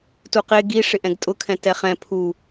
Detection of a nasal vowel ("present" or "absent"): present